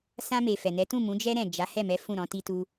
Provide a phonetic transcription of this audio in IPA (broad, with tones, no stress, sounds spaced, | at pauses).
s ã˧ m e˨ f ɛ˨ n ɛ˨˦ t ũ˦˨ m ũ˨˦ d͡ʒ ɛ˦ ɾ ɛ̃˦˨ d͡ʒ a˨˦ h ɛ˦˨ m ɛ˨˦ f ũ˦˨ ɾ ɔ̃˨˦ t i˦ t u˦